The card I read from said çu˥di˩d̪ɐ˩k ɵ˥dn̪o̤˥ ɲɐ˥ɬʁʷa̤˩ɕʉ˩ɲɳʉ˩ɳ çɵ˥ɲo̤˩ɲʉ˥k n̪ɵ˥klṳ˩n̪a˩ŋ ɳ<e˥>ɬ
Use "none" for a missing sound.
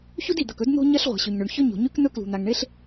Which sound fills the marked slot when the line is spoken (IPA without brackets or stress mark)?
e˥